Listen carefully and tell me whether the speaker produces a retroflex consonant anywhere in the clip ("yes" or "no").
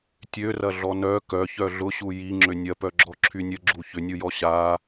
no